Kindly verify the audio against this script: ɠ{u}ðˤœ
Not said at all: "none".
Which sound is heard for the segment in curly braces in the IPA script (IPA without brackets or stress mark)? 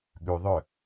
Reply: ʉ